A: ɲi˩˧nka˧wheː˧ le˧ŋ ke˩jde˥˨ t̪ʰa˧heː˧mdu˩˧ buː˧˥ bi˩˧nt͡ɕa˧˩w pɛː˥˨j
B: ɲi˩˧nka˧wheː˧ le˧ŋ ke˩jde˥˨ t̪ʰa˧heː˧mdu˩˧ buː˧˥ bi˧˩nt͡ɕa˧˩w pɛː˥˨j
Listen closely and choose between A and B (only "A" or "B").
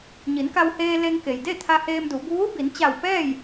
A